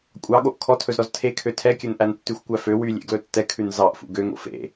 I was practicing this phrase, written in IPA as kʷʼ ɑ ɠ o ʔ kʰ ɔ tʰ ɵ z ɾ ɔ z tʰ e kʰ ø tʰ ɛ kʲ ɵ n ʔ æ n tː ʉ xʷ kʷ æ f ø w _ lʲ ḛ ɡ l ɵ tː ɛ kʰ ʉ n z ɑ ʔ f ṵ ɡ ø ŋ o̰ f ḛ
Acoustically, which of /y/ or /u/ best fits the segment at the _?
y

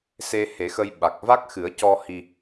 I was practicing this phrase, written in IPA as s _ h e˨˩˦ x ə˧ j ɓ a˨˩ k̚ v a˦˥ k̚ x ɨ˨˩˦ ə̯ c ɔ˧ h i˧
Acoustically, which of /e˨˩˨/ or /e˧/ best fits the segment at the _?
e˧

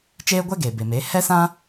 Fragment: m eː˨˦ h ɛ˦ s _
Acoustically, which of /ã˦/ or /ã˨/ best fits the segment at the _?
ã˦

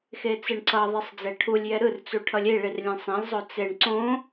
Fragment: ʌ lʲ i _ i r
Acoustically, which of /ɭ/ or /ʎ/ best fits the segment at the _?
ɭ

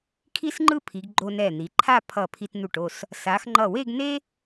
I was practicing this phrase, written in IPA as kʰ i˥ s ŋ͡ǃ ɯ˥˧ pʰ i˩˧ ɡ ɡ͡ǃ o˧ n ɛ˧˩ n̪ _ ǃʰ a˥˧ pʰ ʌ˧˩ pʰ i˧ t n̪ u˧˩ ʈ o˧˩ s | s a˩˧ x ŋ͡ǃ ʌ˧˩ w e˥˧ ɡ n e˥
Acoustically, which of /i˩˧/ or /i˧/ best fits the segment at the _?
i˩˧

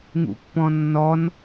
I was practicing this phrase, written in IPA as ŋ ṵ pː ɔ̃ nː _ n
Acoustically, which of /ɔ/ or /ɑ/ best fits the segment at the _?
ɔ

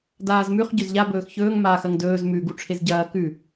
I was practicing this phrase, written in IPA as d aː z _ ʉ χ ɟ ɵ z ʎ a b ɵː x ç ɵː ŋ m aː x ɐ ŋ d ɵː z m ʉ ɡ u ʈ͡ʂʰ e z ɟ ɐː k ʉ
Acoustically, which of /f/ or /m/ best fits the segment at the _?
m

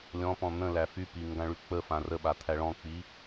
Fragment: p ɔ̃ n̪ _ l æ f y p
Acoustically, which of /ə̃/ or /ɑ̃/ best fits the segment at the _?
ə̃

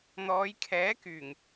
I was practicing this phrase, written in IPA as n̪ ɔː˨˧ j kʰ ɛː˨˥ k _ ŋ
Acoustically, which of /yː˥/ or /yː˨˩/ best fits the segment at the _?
yː˨˩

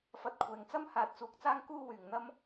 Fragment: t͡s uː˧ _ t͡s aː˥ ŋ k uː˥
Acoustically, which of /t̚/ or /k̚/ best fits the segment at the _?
k̚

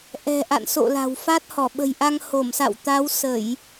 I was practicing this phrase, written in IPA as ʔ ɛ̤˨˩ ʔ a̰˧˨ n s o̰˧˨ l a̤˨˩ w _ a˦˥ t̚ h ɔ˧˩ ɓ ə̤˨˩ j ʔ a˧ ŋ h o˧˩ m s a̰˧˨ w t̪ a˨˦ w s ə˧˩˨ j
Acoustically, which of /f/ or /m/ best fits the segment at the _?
f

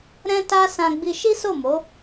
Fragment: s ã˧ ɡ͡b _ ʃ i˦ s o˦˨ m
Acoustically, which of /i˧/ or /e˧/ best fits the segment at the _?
i˧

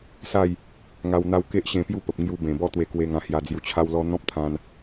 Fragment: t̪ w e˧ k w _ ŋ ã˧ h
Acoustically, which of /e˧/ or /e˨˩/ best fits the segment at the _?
e˧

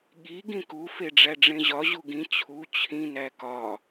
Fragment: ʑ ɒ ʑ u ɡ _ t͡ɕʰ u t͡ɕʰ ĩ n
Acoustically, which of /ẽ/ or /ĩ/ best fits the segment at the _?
ĩ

